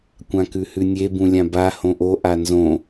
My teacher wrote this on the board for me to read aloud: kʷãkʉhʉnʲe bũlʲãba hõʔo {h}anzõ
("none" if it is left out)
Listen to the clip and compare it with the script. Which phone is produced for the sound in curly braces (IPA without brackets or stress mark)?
ʔ